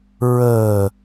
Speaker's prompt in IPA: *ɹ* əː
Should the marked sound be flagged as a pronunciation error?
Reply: no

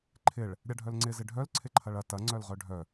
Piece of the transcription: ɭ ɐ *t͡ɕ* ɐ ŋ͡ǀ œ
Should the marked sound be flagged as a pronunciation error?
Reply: yes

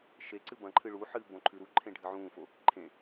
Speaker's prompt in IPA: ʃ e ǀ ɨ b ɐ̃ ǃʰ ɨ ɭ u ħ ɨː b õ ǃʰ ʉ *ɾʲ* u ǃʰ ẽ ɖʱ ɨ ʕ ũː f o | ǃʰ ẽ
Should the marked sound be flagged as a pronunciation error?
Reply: yes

